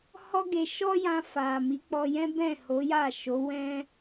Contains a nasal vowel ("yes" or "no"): yes